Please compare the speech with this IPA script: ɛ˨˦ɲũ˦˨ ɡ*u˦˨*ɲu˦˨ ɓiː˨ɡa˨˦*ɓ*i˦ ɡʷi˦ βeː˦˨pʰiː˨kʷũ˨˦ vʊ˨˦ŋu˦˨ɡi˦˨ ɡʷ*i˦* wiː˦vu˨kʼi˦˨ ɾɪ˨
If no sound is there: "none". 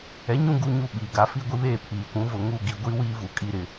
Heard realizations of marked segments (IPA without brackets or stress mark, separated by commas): u˦˨, f, i˦